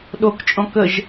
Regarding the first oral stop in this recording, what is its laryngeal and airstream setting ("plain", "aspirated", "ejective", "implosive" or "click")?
implosive